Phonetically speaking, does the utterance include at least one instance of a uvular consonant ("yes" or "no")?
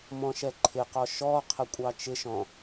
yes